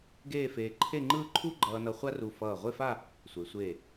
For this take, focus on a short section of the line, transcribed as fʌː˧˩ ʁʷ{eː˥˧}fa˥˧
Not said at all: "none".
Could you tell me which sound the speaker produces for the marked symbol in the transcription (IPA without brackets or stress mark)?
e˥˧